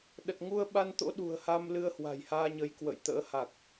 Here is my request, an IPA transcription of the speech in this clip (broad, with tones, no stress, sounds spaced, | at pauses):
ɗ ə˨˩ t̚ ŋ u˧ ə̯ ɓ a˧ n t̪ o̰˧˥ ɗ ṳ˨˩ ə̯ h a˧ m l ɨ˧ ə̯ h w a̤˨˩ j h aː˧ ɲ ə˨˦ j k w ə̰˧˨ j t̪ ə̰ː˧˥ h a˨˩ k̚